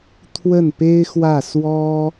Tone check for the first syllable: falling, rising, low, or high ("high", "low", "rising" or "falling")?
falling